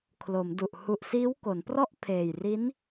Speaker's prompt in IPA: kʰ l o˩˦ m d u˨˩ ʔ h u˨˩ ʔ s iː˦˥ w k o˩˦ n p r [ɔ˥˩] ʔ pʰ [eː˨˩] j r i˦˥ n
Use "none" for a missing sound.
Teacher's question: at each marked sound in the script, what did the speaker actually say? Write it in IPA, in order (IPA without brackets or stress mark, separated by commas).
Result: ɔ˥˩, eː˨˩